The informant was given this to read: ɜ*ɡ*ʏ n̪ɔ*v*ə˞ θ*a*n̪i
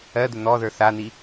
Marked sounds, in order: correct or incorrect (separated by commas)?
incorrect, incorrect, correct